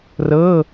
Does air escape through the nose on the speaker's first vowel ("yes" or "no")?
no